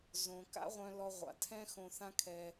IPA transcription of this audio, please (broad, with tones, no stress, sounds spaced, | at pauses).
z õ˩ k a̰˥ ʁʷ œ̃˧ l ɔ˧ ʁʷ a̰˩ tʰ ɛ̃˥ x õ˧ θ ã˥ kʰ ɛ˧